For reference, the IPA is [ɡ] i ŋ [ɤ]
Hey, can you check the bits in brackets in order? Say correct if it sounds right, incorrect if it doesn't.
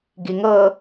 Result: correct, correct

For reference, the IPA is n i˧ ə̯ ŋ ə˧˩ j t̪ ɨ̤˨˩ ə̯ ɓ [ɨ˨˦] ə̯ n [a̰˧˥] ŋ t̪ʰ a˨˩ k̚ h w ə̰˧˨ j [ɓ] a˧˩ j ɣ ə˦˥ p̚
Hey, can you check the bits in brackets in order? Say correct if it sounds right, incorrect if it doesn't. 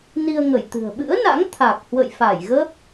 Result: incorrect: ɨ̰˧˥, correct, incorrect: f

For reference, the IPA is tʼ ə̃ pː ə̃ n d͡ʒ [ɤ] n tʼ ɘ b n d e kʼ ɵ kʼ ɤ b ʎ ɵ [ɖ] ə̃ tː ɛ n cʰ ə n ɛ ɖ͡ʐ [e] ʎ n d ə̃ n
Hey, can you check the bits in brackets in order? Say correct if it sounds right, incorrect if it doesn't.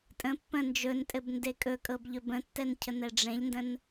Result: incorrect: ɵ, incorrect: b, incorrect: ẽ

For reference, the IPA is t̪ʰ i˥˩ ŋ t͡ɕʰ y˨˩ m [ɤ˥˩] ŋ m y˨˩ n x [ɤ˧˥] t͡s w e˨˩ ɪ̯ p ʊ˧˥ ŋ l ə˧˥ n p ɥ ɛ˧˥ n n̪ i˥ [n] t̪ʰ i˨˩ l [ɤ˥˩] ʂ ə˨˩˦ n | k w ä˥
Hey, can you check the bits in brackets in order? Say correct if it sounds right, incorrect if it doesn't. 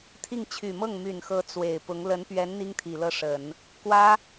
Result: correct, correct, incorrect: ŋ, correct

